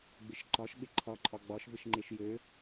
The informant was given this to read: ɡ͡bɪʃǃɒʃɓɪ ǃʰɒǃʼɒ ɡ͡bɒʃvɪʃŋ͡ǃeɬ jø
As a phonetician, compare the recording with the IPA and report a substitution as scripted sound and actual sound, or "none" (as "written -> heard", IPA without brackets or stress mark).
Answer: ɬ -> ʃ